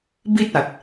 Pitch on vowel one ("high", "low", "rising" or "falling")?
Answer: high